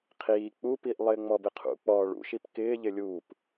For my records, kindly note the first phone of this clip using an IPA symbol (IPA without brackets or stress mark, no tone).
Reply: qʰ